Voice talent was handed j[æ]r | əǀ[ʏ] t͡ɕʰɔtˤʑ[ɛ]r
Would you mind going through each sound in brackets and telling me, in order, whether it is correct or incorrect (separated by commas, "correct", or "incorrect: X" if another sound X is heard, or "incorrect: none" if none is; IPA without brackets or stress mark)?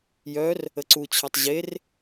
incorrect: œ, incorrect: u, incorrect: e